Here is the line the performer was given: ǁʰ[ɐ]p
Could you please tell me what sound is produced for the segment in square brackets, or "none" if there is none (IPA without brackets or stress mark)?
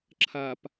ɐ